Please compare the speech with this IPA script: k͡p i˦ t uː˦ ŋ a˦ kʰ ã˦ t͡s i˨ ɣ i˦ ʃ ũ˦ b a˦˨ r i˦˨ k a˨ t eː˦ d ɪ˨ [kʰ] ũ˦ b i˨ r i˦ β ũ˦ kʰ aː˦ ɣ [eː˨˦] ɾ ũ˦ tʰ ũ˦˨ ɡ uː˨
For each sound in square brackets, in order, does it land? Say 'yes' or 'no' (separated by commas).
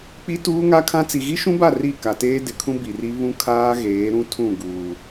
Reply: yes, yes